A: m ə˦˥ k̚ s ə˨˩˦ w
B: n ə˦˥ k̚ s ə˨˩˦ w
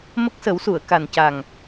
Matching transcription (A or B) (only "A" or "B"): A